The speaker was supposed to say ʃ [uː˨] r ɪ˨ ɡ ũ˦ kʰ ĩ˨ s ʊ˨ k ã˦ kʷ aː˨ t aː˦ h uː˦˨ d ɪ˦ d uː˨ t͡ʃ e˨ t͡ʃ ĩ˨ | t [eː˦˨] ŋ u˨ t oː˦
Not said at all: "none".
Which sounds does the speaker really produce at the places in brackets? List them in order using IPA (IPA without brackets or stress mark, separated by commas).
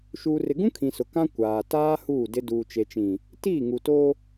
uː˨, iː˦˨